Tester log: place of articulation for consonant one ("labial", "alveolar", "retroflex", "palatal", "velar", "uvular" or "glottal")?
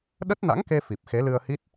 alveolar